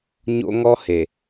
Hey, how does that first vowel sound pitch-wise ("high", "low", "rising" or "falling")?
high